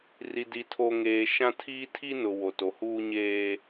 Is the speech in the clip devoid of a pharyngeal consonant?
yes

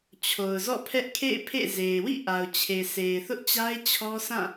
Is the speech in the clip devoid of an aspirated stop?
no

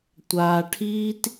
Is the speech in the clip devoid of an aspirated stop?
no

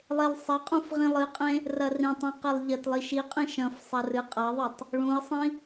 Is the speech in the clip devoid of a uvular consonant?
no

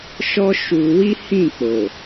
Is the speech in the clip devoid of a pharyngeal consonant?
yes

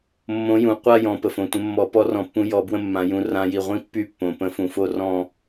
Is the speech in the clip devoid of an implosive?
yes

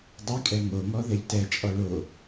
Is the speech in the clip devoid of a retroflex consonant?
no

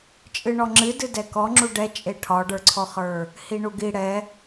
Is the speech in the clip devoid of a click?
no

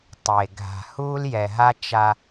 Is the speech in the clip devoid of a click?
yes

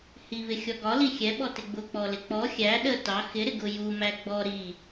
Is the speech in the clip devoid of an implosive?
no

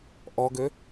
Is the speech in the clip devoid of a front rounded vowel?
no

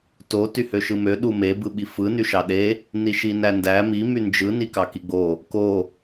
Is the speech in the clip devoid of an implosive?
no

